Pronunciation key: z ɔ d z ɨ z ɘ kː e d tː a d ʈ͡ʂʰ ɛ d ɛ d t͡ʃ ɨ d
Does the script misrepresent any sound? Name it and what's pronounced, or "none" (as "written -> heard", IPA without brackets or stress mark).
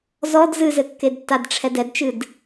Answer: none